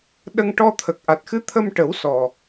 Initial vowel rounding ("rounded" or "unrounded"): unrounded